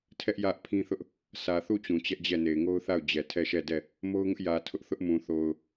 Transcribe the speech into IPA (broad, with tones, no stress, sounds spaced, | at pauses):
tʰ ɛ˦ ʔ j ä˦ ʔ pʰ ĩ˦ θ ʊ˦ ʔ | s ä˨ θ u˦˨ t͡ɕ ũ˨ t͡ɕ ɛ˦ ʔ d͡ʑ ɛ˦˨ n e˨ ɪ̯ ŋ o˦ ʊ̯ θ a˦˨ ʊ̯ d͡ʑ ɛ˨ tʰ ɛ˦˨ ʃ ɛ˦˨ d ɛ˦˨ | m o˦ ʊ̯ ŋ ʊ˦ ʔ j ä˨ tʰ ʊ˦ ʔ θ ʊ˦ ʔ m ũ˨ θ o˨ ʊ̯